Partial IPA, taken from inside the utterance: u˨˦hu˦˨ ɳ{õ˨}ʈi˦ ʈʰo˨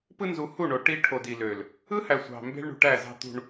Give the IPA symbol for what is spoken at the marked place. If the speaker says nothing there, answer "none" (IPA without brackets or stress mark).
o˨